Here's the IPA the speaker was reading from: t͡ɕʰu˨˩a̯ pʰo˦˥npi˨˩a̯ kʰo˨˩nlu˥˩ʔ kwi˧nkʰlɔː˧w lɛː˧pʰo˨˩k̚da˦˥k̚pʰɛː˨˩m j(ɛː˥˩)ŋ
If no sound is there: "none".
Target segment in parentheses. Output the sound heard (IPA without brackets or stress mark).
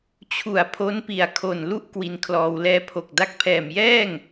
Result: ɛː˥˩